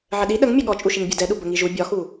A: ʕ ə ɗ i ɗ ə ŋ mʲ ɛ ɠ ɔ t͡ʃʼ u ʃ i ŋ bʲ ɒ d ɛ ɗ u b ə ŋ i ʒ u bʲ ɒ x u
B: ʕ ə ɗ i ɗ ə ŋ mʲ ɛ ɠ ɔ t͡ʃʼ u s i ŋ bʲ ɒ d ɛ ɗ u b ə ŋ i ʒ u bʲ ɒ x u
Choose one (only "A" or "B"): A